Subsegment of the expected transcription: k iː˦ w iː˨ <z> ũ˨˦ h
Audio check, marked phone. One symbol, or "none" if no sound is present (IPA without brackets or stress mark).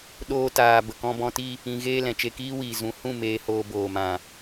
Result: z